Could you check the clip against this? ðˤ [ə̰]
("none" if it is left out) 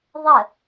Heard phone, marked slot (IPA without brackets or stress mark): ə